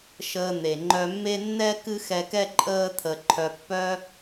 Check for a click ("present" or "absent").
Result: present